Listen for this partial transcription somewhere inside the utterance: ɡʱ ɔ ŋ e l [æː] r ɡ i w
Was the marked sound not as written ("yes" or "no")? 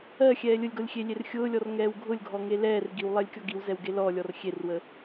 yes